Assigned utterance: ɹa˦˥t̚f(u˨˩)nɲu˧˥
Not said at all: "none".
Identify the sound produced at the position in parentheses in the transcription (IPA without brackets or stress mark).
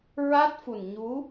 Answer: u˨˩